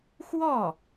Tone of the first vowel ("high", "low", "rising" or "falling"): falling